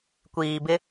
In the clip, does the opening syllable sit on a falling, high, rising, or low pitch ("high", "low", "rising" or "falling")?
low